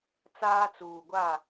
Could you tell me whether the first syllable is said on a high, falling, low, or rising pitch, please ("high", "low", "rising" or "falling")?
high